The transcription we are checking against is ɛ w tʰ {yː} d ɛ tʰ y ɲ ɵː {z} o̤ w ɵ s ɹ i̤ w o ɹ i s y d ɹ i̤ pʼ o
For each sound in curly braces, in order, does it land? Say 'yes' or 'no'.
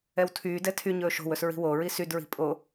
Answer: yes, no

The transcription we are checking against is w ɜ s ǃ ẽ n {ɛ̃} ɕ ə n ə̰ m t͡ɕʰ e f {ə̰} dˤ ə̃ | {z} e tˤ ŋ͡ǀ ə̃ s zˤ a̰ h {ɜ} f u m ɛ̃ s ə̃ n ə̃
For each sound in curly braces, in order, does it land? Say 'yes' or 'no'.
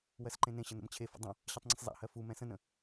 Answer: no, yes, no, yes

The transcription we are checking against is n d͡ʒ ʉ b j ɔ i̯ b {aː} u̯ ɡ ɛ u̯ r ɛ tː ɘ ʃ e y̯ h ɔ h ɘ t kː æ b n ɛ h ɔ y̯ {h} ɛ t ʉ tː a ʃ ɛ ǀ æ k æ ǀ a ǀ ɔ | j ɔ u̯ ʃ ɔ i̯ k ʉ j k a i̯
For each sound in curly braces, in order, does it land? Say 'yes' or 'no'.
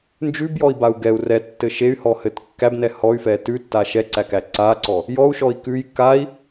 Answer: no, no

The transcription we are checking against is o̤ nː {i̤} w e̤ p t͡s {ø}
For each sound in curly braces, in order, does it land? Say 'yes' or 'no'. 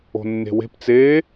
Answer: no, no

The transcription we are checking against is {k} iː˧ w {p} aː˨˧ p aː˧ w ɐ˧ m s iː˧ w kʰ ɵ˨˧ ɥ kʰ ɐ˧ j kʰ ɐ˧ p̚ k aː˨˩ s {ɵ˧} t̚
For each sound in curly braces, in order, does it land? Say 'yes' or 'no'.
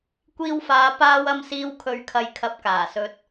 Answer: no, no, yes

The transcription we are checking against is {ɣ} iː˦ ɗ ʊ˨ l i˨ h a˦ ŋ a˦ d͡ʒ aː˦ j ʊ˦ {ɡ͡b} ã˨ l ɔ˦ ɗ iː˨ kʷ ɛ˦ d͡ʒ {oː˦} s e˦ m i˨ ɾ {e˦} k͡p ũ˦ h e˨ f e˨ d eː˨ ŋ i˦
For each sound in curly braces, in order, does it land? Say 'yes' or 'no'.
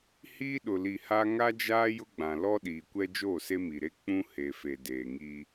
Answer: no, yes, no, yes

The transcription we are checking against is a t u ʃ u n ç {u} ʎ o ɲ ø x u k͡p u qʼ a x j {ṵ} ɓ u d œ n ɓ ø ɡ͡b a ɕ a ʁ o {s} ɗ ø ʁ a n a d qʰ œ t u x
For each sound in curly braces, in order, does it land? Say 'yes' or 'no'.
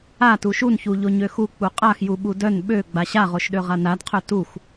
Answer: yes, no, no

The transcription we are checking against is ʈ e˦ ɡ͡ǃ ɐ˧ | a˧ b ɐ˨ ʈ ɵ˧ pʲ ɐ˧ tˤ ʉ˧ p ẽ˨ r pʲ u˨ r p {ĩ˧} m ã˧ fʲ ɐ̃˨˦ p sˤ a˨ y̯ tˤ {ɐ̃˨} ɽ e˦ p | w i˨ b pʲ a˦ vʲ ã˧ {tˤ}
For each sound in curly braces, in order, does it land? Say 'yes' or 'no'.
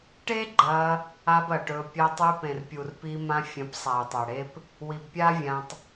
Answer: no, no, yes

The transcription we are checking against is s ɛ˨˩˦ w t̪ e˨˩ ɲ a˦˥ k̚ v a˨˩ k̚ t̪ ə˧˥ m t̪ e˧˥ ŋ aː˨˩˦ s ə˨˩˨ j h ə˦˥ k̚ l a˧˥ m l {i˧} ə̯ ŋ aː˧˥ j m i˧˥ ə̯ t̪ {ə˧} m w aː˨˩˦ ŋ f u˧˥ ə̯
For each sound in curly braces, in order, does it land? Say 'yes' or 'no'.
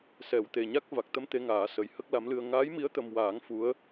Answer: no, yes

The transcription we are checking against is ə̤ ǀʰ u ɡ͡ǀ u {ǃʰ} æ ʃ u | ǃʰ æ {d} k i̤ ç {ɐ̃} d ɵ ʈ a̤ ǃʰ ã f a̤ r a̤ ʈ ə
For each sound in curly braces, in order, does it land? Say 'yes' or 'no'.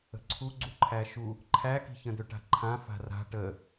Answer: yes, no, no

